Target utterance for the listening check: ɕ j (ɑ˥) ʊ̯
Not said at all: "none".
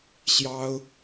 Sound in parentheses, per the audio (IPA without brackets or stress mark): ɑ˥